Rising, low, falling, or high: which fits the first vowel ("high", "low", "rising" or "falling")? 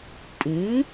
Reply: rising